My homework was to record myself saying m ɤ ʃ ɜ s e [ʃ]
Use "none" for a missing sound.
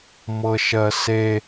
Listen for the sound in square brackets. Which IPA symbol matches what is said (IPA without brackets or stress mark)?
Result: none